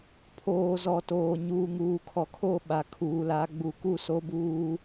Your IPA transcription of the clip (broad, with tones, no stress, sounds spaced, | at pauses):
pʰ oː˨ z ɔ˨ t oː˨ ɲ uː˨ ŋ uː˨ kʰ ɔ˨ kʰ o˦˨ ɓ a˨ kʰ uː˨ l a˨˦ ɡ͡b u˨ k u˦˨ s o˦ b uː˦